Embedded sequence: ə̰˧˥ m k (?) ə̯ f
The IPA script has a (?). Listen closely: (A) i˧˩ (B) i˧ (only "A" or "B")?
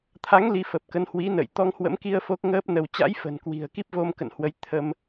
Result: B